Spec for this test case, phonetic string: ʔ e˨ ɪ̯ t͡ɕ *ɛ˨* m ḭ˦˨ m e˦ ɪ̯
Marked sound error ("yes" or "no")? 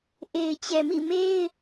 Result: no